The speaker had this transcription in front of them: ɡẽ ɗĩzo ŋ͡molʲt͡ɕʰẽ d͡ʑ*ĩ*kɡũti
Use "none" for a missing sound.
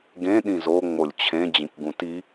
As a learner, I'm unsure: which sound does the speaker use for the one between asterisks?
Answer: ĩ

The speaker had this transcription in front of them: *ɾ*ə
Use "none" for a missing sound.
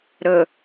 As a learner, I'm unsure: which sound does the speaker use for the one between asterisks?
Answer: ɾ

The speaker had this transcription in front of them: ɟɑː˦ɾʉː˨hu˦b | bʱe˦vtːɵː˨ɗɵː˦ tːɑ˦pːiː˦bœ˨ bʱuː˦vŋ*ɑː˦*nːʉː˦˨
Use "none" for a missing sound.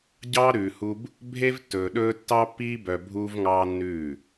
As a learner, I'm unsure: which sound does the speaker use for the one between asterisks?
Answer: ɑː˦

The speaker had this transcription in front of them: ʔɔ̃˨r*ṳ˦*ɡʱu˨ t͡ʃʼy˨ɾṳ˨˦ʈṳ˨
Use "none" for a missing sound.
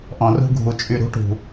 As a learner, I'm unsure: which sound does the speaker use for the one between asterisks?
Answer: ṳ˧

